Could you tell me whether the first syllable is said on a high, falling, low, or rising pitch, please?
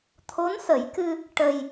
rising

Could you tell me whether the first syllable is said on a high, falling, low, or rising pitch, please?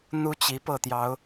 high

